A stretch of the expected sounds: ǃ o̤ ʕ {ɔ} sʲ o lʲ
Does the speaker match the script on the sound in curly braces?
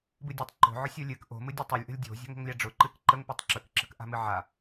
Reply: no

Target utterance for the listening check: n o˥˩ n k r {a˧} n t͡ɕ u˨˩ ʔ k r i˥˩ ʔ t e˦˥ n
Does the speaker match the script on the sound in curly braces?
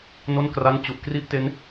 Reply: no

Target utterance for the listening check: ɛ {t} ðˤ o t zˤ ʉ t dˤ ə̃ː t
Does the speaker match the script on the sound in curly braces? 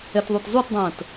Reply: yes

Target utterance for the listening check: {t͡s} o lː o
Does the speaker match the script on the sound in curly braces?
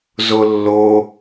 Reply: no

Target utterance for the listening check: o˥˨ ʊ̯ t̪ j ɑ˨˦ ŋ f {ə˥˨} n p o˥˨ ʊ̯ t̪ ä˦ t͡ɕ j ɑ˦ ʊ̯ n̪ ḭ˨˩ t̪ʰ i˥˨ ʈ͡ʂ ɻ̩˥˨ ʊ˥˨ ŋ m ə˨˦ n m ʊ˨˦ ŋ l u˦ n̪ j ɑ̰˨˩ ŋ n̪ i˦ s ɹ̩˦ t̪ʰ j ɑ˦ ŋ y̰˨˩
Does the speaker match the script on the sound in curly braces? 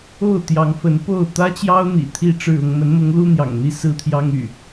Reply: no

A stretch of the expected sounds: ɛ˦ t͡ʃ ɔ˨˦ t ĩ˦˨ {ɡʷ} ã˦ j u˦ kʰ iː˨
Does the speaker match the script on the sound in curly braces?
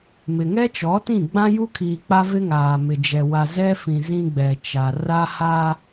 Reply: no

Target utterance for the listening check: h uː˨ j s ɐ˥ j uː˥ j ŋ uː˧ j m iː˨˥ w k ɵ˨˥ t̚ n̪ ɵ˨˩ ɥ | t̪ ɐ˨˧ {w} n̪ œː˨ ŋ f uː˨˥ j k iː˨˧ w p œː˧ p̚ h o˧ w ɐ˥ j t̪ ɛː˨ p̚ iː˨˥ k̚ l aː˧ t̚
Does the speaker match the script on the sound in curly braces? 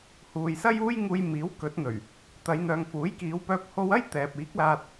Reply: no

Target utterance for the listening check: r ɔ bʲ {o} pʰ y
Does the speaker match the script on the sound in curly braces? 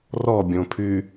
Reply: no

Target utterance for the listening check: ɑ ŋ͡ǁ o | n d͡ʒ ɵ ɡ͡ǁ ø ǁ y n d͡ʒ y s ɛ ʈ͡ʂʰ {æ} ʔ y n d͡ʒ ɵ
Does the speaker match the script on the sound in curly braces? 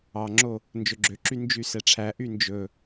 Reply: yes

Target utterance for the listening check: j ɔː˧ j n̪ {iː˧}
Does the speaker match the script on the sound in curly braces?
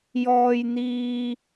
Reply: yes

